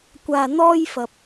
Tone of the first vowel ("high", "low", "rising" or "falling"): low